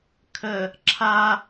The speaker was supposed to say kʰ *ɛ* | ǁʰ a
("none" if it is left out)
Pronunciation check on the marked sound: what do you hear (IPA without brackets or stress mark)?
ə